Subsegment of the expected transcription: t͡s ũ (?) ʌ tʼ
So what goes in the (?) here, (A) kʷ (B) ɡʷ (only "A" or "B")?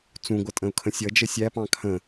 B